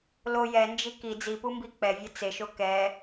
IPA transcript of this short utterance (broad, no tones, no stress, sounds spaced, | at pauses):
l o j ɛ n d͡ʒ i k i d͡z i p u m b i k͡p ɛ vʲ ɛ t͡s e ʃ o k ɛ